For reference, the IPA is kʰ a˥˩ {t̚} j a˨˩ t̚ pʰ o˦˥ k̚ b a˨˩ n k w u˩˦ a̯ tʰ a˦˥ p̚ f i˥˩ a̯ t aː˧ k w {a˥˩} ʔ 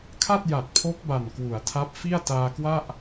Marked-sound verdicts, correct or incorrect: correct, correct

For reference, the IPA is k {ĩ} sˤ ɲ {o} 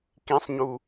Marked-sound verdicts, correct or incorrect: correct, incorrect

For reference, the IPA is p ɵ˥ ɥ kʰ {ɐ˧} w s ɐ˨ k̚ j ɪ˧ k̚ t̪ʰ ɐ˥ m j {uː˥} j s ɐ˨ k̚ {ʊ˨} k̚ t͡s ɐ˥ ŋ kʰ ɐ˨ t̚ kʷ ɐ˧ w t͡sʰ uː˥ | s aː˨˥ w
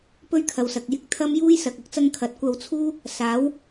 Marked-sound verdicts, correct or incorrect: incorrect, correct, incorrect

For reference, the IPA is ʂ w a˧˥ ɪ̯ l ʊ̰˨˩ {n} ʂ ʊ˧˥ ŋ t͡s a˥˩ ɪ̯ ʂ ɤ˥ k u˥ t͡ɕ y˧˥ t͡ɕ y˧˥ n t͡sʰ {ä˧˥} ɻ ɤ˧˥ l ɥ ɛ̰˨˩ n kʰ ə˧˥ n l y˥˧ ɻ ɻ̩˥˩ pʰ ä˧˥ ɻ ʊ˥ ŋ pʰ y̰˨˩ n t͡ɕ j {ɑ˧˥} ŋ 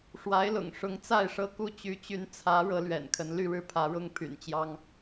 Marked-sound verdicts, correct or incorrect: incorrect, correct, incorrect

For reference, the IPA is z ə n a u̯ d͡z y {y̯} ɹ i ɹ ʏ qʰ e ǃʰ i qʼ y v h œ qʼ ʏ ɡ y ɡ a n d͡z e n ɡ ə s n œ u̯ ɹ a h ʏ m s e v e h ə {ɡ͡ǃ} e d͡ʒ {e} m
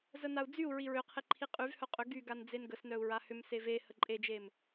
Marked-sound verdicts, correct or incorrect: incorrect, incorrect, correct

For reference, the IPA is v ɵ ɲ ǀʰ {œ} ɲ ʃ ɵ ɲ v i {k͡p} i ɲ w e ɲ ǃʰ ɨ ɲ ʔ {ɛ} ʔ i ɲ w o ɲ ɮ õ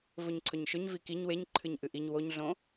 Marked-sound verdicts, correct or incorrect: incorrect, incorrect, incorrect

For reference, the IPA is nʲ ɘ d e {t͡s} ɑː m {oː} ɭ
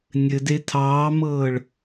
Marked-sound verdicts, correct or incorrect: incorrect, incorrect

